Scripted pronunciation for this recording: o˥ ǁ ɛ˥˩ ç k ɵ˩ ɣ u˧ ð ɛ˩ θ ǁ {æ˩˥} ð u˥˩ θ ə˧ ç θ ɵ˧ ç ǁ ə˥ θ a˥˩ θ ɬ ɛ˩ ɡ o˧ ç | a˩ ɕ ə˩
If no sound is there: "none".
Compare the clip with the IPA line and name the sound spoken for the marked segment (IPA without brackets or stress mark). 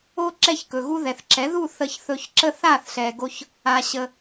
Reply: ɛ˩˥